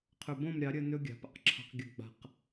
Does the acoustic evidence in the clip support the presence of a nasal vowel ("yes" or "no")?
yes